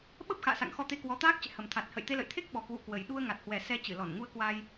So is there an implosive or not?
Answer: yes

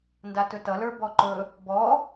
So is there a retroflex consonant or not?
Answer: no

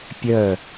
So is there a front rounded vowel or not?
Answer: yes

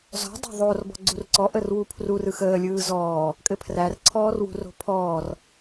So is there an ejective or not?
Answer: yes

